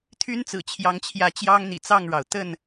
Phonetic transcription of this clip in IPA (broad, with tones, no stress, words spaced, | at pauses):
t̪ʰy˦nt͡sɹ̩˨˩t͡ɕʰjɑ˨˦ŋt͡ɕʰjä˨˦ t͡ɕjɑ˦ŋn̪ḭ˨˩t͡sɑ˥˨ŋɻɑ˩ʊ̯ t̪ə˥˨n